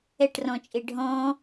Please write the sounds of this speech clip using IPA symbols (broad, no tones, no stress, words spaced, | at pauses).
ɛʈrɔ̃t͡ʃʼe ɖʱɔ̃